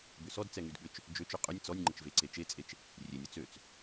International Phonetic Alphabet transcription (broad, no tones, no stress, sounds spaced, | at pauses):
b ʏ s ɔ d t͡s ɛ ŋ y d ɠ ʏ t͡ʃ | d͡ʒ ø t͡ʃ ø qʼ ʏ nʲ t͡s ɔ nʲ ŋ͡ǃ ə t͡ʃ v e ǀ e t͡ʃ e t͡sʼ e t͡ʃ | rʲ e nʲ ɔ t͡s ø t͡s